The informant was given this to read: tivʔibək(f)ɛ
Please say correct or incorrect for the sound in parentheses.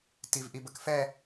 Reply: correct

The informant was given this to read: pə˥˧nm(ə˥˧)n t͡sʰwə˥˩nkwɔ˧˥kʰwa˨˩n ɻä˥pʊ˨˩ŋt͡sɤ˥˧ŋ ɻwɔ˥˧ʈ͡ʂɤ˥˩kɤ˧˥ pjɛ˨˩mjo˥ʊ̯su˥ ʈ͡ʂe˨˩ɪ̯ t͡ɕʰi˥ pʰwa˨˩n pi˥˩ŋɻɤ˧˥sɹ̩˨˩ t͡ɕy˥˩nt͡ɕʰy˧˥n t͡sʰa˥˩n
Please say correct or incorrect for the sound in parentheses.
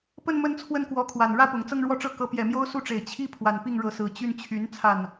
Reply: correct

